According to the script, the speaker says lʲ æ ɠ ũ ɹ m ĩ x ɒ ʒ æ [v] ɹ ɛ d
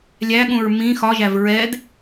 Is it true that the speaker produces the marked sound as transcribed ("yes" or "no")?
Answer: yes